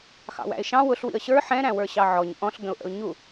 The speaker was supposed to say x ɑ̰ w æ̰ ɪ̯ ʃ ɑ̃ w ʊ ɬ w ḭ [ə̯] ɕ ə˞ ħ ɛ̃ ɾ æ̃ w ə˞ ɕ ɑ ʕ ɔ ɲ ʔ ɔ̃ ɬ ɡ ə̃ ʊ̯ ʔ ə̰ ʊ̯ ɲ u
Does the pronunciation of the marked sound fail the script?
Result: no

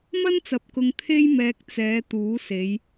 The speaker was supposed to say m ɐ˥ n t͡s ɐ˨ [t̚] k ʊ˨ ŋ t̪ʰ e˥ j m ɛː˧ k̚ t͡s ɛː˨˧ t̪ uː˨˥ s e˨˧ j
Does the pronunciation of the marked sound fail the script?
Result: yes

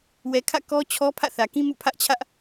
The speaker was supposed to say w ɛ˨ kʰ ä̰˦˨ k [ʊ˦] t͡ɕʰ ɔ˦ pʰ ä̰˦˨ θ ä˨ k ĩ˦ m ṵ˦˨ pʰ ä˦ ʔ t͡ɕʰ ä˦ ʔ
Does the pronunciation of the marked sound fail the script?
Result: yes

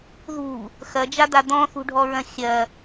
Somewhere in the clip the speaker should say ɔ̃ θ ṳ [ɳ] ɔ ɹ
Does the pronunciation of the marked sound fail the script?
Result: yes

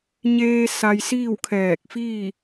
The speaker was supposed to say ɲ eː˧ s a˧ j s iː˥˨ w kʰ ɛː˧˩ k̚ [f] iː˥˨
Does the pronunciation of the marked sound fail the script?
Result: no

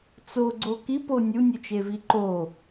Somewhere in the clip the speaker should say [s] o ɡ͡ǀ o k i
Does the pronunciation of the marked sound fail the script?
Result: yes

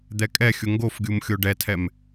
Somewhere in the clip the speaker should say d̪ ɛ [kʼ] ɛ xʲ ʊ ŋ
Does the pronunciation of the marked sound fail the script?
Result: no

